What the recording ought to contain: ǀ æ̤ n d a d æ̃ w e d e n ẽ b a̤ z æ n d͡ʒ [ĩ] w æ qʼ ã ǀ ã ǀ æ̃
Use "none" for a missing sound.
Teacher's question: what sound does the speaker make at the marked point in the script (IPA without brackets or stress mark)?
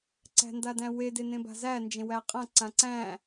ẽ